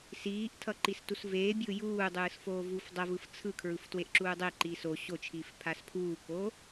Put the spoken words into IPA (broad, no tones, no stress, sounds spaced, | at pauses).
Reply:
s iː ʔ tʰ ʌ ǃ i s t u s v eː bʲ ɯː j uː dˤ ɯː s f oː v uː f dˤ ʌ v ɯ f t͡sʰ ɯ kʰ ɹ ɯ f t w e ʔ ǁ uː dˤ e ǃ iː s o ɕ o t͡ʃʰ iː f pʰ a s pʰ uː k oː